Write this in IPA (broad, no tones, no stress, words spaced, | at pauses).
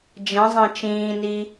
d͡ʒə̃zˤə̃ː t͡ʃĩːni